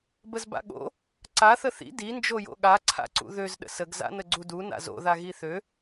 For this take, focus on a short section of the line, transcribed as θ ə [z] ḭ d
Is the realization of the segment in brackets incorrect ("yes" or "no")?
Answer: yes